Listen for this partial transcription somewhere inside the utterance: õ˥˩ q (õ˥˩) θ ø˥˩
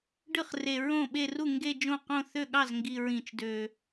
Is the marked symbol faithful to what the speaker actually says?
yes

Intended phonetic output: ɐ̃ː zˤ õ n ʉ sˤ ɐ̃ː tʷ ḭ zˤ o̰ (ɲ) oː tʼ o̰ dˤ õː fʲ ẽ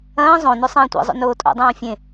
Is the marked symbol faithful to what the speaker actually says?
no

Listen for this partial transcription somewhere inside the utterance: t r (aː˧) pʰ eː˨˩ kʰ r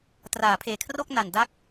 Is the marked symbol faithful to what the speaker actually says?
no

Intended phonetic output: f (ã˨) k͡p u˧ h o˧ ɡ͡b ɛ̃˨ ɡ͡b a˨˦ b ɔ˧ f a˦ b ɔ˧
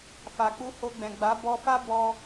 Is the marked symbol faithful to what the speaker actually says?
no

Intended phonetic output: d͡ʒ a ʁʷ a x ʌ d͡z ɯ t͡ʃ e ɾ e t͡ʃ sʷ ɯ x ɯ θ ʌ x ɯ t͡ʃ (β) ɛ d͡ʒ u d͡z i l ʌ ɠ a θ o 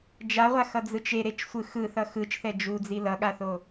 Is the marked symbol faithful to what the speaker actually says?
no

